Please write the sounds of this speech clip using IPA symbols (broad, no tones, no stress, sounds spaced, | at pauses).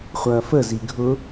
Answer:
χʷ ɐː f ə z i ɡʱ ʊ